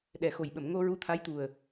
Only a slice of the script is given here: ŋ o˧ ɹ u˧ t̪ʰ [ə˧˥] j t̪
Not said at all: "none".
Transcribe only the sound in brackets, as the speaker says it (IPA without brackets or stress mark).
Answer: a˧˥